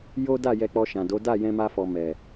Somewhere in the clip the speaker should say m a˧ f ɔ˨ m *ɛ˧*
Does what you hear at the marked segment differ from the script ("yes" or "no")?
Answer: yes